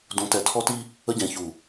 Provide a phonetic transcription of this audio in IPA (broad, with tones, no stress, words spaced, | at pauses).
dũ˨tɛ˨tʰɔ˦ti˦ | ə˦ɟɛ̃˨çu˨